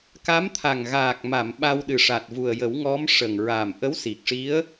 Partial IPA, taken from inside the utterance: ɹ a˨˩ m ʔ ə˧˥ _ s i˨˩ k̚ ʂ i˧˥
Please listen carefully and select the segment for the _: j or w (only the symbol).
w